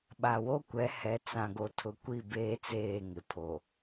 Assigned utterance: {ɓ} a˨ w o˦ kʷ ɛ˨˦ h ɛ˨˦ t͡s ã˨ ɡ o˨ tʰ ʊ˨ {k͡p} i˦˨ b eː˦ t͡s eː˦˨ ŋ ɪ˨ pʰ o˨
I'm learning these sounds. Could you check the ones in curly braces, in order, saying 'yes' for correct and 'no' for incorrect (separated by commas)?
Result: yes, no